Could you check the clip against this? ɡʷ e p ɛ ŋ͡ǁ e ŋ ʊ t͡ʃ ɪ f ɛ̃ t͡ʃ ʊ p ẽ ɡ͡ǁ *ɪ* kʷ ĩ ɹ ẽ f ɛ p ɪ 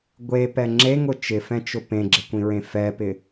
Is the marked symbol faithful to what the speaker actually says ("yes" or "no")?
yes